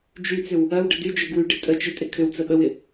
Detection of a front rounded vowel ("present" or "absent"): present